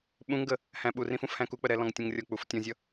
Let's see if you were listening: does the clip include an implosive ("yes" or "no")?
yes